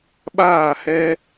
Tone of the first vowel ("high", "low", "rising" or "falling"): falling